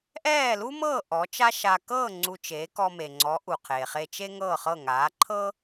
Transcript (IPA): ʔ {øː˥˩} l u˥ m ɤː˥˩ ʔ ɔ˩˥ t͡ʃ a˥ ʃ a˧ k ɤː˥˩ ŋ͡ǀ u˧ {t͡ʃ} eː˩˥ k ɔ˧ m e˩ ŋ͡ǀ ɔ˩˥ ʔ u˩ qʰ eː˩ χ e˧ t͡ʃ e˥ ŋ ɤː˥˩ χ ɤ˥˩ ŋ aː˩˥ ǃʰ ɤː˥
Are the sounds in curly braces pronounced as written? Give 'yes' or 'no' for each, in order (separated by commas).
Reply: no, yes